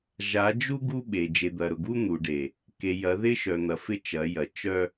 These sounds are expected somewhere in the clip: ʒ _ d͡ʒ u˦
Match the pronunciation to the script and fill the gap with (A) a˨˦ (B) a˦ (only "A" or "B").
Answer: A